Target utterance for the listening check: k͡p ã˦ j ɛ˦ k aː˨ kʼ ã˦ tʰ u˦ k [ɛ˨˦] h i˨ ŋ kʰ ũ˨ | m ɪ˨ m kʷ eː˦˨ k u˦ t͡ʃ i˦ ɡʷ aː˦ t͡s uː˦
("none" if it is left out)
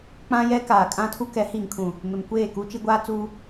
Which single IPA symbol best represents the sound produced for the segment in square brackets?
ɛ˨˦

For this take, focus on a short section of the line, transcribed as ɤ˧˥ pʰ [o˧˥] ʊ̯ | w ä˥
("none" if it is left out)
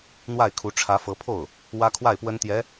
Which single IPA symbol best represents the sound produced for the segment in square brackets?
o˥˩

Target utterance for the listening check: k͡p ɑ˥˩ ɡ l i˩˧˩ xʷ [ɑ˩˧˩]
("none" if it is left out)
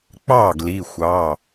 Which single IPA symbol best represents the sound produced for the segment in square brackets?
ɑ˩˧˩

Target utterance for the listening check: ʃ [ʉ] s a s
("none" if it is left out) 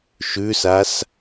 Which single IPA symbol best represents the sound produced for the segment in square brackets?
ʉ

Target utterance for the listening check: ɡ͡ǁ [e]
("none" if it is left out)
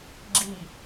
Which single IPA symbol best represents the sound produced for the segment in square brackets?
i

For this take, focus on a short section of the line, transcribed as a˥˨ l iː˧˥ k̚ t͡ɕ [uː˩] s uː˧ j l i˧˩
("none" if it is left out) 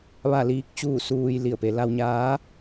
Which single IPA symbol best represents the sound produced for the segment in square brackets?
uː˥˨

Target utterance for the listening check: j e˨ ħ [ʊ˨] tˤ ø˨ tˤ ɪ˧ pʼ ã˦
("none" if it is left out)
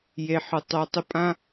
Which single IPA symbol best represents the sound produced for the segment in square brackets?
ʊ˨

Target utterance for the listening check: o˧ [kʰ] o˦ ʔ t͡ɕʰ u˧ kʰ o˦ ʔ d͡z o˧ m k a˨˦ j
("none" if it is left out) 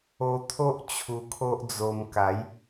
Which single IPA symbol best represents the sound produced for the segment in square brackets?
t̪ʰ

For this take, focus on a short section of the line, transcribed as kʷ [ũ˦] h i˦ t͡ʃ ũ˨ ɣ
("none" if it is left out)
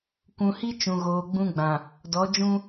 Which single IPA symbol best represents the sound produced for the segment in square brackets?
ũ˨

